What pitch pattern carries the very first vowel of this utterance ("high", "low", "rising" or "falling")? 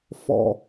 low